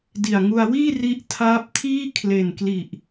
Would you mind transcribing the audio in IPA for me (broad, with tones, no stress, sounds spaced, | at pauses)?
d i˨˩ a̯ ŋ u˧ a̯ w iː˥˩ r i˦˥ ʔ tʰ aː˦˥ p̚ tʰ iː˥˩ kʰ l e˨˩ n k l i˨˩ ʔ